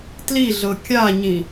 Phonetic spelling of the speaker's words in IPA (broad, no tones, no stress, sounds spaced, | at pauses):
t l i ɮ ɤ kʲ a ɲ ĩ